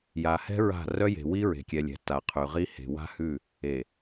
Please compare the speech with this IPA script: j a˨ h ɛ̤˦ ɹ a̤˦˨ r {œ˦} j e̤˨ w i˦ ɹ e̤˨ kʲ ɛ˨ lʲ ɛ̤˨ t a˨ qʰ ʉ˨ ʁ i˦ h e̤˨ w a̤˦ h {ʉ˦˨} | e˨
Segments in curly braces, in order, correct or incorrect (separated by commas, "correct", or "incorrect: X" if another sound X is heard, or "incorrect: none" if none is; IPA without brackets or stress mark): correct, correct